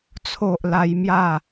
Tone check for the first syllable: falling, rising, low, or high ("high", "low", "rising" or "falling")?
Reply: low